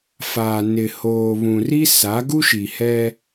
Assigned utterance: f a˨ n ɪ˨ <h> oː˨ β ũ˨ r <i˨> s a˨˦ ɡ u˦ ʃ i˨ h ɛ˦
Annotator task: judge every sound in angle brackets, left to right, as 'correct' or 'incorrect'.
correct, incorrect: i˦

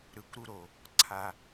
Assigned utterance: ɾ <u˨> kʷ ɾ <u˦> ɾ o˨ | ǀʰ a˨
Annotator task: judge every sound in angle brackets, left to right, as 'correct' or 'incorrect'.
incorrect: ɯ˨, correct

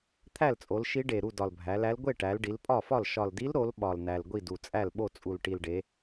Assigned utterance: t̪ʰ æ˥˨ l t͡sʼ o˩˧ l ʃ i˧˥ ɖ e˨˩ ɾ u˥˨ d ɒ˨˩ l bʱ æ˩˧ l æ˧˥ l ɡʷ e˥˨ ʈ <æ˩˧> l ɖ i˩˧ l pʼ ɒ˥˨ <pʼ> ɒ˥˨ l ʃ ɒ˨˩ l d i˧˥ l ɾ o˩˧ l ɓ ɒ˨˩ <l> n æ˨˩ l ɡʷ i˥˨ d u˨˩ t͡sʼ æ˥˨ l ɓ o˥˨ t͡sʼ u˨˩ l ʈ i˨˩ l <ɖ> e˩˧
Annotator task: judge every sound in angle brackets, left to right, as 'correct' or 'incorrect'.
correct, incorrect: f, correct, correct

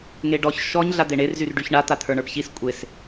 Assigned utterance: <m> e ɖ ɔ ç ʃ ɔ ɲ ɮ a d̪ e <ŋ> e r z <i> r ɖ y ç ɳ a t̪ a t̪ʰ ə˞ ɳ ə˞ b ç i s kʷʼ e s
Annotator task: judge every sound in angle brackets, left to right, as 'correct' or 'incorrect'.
incorrect: ŋ, incorrect: ɳ, incorrect: y

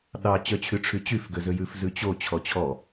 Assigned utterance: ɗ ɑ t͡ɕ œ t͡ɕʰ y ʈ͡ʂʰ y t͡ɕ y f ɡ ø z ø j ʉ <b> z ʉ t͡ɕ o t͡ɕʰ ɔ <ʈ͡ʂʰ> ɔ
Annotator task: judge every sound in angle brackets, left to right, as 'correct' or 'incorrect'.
incorrect: f, incorrect: t͡ɕʰ

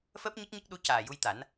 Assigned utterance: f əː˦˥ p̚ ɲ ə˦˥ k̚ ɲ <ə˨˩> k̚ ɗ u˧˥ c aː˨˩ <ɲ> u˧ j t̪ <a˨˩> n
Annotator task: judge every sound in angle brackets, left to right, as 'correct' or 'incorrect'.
incorrect: ə˦˥, incorrect: j, incorrect: a˨˩˦

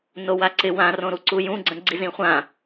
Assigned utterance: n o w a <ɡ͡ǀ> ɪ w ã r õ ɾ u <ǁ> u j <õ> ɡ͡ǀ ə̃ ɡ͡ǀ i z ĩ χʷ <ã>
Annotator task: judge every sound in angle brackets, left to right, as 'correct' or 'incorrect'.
incorrect: ǀ, incorrect: ǀ, incorrect: ũ, correct

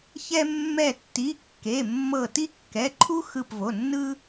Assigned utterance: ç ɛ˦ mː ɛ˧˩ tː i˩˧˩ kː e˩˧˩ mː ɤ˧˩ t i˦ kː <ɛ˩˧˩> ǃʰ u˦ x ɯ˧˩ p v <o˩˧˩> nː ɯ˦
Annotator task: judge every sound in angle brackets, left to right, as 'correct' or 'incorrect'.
correct, correct

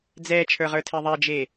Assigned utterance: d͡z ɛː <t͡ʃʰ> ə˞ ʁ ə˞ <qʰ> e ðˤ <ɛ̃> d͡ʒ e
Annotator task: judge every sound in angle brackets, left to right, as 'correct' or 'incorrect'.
correct, incorrect: tʰ, incorrect: ɛ

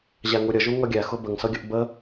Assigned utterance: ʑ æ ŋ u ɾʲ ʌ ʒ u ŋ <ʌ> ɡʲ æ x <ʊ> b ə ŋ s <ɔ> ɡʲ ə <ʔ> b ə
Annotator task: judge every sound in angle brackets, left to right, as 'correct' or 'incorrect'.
correct, correct, incorrect: ʌ, correct

